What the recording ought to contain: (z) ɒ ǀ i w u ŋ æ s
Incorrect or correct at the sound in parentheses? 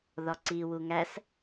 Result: incorrect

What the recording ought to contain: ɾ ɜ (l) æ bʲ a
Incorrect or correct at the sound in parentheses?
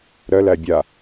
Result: correct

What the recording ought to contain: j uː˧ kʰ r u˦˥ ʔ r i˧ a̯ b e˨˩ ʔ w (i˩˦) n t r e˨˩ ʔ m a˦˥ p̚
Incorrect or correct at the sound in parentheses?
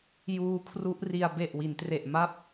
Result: correct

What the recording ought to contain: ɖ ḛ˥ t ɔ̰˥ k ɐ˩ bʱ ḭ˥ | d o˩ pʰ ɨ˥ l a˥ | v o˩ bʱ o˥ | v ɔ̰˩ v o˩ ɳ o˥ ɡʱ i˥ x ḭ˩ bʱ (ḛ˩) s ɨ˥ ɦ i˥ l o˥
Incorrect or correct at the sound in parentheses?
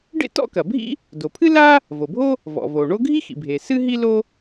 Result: incorrect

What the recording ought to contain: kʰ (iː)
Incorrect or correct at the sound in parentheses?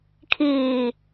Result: correct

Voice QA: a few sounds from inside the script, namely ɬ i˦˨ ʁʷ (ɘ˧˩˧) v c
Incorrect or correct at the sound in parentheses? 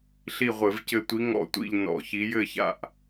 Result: correct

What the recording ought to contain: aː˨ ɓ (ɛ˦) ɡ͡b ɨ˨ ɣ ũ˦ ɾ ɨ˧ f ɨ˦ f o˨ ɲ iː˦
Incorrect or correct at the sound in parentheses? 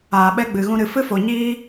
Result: correct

